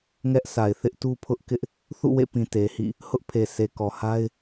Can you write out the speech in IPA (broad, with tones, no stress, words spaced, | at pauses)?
ŋɛ˦ʔsʰa˨ɪ̯ θɪ˦ʔtu˦pʰʊ˦ʔkɪ˦ʔ | θṵ˦˨wḛ˦˨pĩ˨ te˨hḭ˦˨ | hʊ˦ʔpʰe˨se˨ kɔ˨ha˦ɪ̯